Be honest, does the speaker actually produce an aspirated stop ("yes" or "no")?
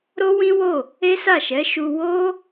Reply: no